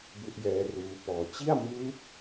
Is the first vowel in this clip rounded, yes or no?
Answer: yes